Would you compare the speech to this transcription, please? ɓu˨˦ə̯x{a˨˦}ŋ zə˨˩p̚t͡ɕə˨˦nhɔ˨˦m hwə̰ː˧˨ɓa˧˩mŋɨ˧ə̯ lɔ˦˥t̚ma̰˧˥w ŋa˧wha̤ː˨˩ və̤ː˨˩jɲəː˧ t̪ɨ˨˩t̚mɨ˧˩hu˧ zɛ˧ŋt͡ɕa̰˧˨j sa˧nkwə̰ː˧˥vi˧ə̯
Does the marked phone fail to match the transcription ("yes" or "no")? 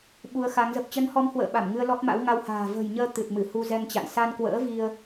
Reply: no